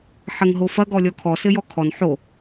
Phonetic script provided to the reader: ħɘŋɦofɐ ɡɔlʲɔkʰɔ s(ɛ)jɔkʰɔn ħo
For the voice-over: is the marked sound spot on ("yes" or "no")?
no